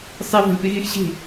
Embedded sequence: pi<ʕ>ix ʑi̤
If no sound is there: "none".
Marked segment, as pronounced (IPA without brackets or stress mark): ɣ